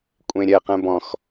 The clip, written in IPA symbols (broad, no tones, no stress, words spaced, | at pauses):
kʷʼẽɾʲɛ qɛ̃bɔ̃x